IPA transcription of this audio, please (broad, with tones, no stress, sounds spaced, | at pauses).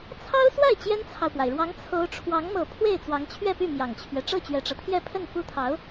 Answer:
t͡sʰ ɑ˥ ʊ̯ s w a˥˩ ɪ̯ t͡ɕ j ɛ˥ n t͡sʰ ɑ˨ ʊ̯ p w a˩ ɪ̯ ɻ w ɑ˧˥ ŋ t͡sʰ o˧˥ ʊ̯ ʈ͡ʂʰ w ɑ˧˥ ŋ m ɤ˨˩ pʰ w e˥˩ ɪ̯ t͡s w ɑ˧˥ ŋ t͡ɕʰ ɥ ɛ˥˧ p y˥˩ m j ɑ˨˩ ŋ t͡ɕʰ ɥ ɛ˦ ʈ͡ʂ ɤ˥˩ t͡ɕ ɥ ɛ˨˩ ʈ͡ʂ ɤ˦ t̪ʰ j ɛ˥˧ pʰ ə˥˩ n f u˥ t̪ʰ ɑ˧˥ ʊ̯